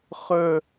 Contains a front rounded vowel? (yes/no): yes